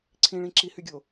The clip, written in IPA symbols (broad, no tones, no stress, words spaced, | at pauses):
ǀʰĩɭĩ ǁihyɡʲo